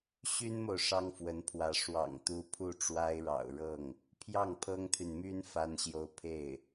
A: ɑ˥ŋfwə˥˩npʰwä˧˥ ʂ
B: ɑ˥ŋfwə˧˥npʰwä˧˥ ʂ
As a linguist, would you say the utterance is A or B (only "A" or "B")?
B